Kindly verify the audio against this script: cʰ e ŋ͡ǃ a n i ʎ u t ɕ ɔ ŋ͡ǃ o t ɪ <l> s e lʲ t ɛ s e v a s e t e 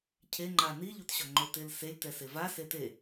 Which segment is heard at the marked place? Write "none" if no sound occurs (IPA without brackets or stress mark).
l